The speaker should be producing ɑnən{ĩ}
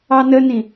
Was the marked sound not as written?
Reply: no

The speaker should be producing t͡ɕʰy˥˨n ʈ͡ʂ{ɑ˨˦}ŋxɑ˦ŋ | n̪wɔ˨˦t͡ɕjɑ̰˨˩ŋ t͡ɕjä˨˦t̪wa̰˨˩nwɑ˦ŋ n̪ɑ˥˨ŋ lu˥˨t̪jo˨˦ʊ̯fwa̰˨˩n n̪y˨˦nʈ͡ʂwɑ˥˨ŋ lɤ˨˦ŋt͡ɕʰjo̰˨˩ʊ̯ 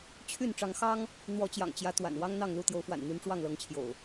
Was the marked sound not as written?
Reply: no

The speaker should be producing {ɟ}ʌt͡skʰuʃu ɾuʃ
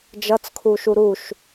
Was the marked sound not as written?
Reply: yes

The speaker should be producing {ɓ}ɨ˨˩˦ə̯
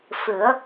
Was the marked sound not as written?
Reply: yes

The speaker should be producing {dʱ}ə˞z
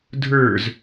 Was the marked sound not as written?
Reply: no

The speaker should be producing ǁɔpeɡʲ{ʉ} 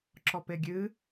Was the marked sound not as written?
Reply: yes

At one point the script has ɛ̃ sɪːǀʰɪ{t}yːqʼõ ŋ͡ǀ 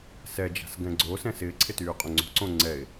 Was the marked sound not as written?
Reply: no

